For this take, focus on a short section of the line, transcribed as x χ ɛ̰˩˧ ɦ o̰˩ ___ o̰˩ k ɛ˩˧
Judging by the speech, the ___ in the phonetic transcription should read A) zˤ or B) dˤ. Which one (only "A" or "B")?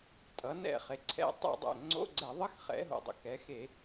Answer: B